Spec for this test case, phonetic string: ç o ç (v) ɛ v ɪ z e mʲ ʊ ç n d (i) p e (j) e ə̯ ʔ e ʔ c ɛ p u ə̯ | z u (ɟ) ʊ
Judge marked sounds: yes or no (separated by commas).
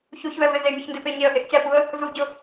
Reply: yes, no, no, yes